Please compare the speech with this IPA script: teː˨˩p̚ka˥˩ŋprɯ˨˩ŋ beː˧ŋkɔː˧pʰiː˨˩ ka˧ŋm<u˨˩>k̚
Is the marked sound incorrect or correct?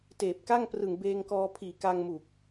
correct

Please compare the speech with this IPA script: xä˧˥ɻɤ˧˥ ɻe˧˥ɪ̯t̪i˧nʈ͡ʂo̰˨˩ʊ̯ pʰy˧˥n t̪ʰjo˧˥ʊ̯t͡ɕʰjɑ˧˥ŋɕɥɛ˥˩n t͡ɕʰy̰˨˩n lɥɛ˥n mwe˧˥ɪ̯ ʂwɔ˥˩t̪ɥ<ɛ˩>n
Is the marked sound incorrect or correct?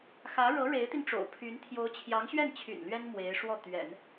incorrect: ɛ̰˨˩˦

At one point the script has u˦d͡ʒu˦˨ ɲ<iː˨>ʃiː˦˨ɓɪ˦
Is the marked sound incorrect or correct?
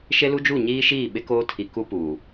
incorrect: iː˦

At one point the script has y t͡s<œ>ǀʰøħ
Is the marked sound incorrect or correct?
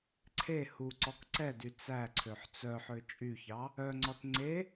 incorrect: æ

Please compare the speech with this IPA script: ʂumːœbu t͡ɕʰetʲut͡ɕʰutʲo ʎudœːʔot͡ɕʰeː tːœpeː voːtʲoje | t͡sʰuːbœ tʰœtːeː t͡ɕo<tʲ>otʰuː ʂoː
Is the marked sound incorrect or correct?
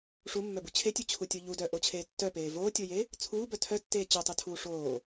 incorrect: tˤ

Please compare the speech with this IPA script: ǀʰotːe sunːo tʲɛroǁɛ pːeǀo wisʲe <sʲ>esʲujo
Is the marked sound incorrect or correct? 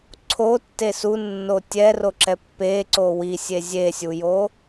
incorrect: zʲ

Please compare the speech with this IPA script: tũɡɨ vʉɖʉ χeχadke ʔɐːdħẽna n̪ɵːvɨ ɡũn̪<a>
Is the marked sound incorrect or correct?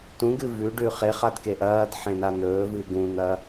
incorrect: ɐ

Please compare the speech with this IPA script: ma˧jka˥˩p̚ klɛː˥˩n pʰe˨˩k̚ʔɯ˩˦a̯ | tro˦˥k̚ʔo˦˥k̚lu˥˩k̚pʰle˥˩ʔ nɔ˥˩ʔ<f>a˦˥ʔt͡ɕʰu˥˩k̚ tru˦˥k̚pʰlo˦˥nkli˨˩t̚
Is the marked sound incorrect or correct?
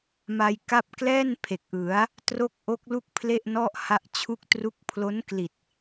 incorrect: h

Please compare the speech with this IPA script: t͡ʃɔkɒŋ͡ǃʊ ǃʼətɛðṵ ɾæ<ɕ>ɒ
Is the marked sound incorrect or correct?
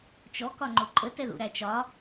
incorrect: t͡ʃ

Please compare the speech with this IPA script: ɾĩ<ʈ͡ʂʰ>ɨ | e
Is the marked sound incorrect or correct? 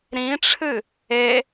correct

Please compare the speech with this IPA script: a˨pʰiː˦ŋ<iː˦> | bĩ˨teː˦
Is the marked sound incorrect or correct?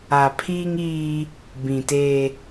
correct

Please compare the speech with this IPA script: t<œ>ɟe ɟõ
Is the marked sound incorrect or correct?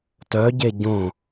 correct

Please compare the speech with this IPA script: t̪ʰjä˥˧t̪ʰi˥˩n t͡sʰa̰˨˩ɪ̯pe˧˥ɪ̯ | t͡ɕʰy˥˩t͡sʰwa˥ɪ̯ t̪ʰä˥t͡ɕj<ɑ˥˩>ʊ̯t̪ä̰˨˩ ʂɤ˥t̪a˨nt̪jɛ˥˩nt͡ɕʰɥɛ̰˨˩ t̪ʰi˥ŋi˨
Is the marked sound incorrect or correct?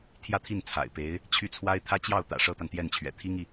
correct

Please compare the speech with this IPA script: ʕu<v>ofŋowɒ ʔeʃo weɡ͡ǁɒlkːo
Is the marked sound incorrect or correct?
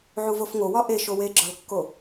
correct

